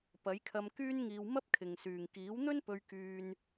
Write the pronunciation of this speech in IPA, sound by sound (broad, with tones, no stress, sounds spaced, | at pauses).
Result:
p ɐ˨˥ j kʰ ɐ˧ m k yː˥ n ŋ iː˧ w m ɐ˥ p̚ kʰ ɪ˨ ŋ s yː˨ ŋ k iː˨˥ w n̪ ɵ˥ n p ɵ˧ ɥ k yː˥ n